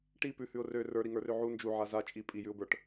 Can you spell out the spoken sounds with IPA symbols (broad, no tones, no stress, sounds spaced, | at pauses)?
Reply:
ʈ i p ʉ h ʉ ʊ̯ r ø r ə˞ ɾ i ŋ ə˞ r ø ʕ u n d͡ʒ u ʕ a z a t͡ʃʼ i pʼ i j ʉ ʊ̯ b ə˞ ʈ